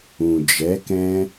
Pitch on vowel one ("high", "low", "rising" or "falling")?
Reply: low